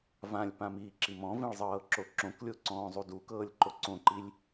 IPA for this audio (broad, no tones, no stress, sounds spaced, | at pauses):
v ã lʲ p ã m iː ǁ i m ɔ̃ v ĩ ɭ zˤ ɤː ǁ o ǁ õ k lʲ o ǀ ɔ̃ː zˤ u d u k ɤː lʲ ǃ o ǀ õ ǃ i lʲ